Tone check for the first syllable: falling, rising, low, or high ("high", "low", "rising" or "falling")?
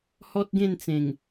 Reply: high